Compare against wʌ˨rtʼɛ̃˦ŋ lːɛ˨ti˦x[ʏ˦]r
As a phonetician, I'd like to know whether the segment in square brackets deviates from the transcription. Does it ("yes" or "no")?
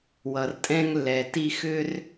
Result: no